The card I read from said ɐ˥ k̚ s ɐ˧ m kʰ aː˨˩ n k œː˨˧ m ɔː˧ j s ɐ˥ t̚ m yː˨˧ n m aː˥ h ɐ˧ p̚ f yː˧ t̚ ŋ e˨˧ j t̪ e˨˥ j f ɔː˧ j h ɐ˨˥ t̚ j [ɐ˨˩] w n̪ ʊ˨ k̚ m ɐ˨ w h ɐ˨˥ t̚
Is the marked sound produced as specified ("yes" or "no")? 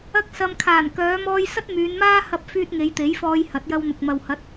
no